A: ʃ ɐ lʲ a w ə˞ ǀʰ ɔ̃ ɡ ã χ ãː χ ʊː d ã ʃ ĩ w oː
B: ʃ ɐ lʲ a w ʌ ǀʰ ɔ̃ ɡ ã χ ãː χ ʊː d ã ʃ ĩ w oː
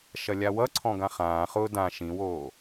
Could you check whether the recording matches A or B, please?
B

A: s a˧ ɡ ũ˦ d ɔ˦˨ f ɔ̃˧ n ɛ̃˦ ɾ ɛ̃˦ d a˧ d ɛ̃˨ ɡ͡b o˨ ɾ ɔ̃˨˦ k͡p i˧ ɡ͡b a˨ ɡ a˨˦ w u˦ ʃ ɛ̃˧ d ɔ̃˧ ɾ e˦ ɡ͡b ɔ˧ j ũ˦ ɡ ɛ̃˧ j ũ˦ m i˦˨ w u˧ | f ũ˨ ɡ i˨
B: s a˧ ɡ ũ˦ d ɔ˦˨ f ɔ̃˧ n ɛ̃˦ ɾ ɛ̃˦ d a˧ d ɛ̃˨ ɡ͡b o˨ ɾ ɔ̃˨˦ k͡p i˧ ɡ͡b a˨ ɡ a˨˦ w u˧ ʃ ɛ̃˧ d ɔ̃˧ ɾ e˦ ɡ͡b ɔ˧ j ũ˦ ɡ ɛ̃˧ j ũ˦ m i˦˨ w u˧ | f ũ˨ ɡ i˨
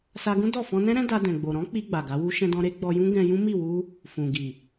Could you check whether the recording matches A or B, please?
A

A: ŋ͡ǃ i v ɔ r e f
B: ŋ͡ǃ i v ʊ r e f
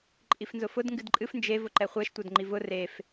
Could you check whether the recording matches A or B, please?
B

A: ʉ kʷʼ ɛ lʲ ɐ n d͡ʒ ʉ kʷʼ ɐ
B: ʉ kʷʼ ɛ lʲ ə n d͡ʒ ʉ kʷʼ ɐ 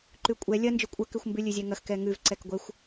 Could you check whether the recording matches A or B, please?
A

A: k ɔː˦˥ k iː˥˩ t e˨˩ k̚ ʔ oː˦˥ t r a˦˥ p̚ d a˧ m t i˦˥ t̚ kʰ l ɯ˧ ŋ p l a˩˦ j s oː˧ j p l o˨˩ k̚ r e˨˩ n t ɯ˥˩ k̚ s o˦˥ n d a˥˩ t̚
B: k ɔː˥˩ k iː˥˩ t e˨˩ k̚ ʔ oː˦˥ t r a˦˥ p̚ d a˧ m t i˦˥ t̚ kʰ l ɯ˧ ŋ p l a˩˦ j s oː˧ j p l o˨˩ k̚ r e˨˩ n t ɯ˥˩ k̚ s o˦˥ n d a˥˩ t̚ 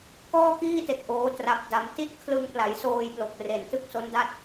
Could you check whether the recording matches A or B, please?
B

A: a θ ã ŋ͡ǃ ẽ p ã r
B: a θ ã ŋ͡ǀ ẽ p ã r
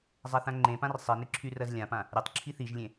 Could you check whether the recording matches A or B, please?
A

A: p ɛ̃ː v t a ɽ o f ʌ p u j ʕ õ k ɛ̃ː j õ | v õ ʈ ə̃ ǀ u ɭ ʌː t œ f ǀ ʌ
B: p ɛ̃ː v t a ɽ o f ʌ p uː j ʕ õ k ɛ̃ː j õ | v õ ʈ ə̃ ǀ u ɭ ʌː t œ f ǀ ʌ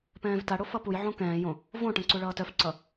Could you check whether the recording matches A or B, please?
A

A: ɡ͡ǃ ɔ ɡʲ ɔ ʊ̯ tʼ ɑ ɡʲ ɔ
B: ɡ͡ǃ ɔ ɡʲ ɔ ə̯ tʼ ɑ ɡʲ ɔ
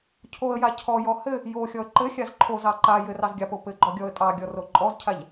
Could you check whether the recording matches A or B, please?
B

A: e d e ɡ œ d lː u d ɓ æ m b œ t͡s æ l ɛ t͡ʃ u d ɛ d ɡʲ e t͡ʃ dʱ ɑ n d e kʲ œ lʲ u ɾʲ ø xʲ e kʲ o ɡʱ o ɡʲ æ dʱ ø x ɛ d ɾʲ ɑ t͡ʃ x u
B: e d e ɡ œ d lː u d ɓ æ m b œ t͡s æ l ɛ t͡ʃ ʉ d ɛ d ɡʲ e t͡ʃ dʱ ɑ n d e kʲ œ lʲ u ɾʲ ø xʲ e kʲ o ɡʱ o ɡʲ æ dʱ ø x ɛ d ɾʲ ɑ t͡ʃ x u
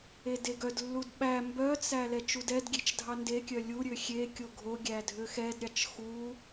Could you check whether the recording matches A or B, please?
A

